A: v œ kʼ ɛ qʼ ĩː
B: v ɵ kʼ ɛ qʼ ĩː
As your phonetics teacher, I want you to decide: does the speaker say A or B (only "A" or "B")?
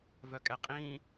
A